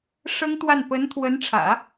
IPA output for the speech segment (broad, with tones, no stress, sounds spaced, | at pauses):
ʂ ɤ˥ ŋ t̪ w a˥˩ n p ə˧˥ n t̪ʰ w ə˧˥ n ʈ͡ʂʰ ä̰˨˩˦